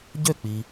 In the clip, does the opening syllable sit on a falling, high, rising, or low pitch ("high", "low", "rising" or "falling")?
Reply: falling